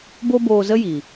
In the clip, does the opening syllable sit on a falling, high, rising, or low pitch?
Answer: high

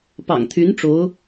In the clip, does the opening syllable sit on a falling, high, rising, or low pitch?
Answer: low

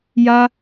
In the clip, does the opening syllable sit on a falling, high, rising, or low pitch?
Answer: high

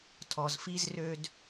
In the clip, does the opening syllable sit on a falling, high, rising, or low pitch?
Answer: low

